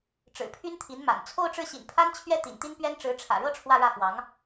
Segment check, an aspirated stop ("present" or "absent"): present